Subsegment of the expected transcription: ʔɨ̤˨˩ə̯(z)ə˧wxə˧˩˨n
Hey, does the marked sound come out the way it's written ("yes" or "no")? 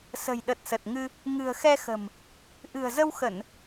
yes